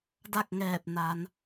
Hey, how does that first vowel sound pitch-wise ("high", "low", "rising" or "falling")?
falling